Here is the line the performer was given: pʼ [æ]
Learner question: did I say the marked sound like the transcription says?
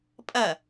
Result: no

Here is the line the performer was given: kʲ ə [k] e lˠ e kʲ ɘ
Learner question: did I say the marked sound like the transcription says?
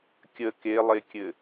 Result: yes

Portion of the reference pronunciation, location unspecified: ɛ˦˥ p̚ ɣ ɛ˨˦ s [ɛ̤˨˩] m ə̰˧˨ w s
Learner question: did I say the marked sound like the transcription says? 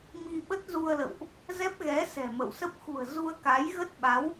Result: yes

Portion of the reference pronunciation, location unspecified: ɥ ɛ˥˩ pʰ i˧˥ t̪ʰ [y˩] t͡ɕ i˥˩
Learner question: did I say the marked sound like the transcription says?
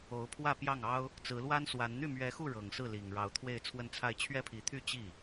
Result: no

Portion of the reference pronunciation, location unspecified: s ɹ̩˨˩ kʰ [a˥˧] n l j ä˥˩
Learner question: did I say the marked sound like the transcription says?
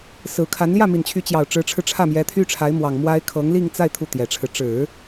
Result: no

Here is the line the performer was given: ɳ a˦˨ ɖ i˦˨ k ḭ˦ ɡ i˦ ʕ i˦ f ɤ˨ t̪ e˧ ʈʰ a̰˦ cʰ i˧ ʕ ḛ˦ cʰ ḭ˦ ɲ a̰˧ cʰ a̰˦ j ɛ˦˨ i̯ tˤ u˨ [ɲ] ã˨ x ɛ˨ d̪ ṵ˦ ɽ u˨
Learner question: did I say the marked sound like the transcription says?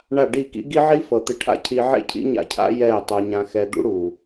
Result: yes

